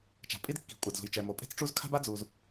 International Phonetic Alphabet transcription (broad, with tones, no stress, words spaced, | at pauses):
t͡ʃa̤˩pʼi˥d kːi̤˩ kʷʼa˩dzṳ˩jt͡ʃɛ˩ mo˩pʼe̤˥t͡sʈ͡ʂu˥z kʰa̤˥ba˥d͡zu˩z